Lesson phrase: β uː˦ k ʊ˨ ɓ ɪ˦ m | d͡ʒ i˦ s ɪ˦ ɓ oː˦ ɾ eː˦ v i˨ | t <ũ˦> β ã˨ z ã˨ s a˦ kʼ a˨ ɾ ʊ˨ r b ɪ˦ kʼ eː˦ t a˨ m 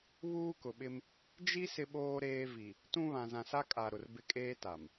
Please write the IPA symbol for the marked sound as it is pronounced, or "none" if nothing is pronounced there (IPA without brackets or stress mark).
ũ˦